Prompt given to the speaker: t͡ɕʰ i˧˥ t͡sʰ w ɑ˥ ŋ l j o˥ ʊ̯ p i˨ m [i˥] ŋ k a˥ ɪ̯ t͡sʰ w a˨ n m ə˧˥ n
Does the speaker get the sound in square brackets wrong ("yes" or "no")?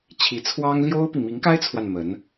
yes